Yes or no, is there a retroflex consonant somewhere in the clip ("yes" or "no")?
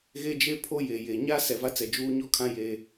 no